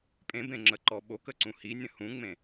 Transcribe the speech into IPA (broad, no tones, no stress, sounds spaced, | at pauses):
pʼ ẽ b ẽ ŋ͡ǁ ə ǃ ɔ ɓ o k ə ǀ ũ h i nʲ ə̃ h ũ ŋ͡m ẽ